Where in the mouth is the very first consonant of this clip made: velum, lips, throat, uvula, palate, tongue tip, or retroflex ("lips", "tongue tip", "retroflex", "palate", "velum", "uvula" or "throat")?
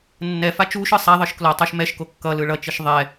tongue tip